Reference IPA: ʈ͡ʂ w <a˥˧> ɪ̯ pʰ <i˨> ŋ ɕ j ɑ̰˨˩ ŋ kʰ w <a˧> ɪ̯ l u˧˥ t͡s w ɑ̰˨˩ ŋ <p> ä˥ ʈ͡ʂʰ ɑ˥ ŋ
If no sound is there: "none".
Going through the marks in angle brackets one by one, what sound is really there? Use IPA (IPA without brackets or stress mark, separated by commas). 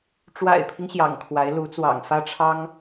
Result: a̰˨˩, i˦, a˧˥, f